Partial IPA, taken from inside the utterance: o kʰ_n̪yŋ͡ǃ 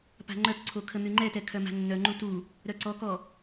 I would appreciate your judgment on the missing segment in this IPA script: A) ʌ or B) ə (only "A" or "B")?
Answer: B